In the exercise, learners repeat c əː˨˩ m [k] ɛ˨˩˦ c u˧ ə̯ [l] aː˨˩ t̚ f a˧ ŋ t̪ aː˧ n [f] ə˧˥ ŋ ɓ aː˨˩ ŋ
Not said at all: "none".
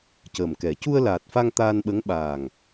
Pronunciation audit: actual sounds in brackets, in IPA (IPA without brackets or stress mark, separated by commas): k, l, ɓ